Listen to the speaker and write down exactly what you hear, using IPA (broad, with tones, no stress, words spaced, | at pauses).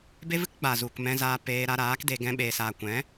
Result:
be˦vɨ˦k ɡ͡ba˨zu˨k mɛ̃˧zaː˧peː˧ ɾa˧ɾaː˨˦kde˧ ɡɛ̃˦ɓeː˧saː˧ kʷɛ̃˨˦